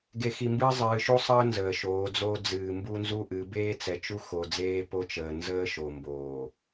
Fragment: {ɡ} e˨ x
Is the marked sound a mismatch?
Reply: no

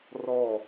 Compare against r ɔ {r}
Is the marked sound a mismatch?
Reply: yes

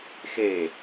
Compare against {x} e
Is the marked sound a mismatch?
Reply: no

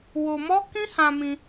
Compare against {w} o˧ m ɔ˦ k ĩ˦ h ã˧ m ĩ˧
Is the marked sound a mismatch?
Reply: no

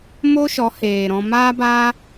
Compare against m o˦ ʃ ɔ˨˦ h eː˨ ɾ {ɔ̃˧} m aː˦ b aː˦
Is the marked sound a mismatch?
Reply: no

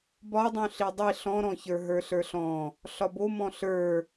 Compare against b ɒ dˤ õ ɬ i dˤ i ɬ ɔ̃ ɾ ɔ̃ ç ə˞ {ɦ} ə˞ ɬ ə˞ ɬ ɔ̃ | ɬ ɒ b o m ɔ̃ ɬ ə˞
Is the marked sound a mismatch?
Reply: no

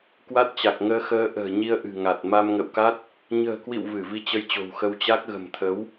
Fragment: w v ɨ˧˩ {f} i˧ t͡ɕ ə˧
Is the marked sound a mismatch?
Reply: yes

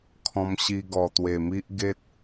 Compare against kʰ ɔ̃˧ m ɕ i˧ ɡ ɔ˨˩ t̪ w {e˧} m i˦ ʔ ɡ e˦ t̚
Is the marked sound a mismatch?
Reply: yes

